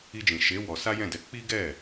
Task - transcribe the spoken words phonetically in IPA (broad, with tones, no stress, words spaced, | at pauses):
i˧d͡ʒĩ˨ ʃe˨˦ wɔ˧ sa˦jɛ̃˦˨dɛ˧ k͡pi˦ɡɛ˦˨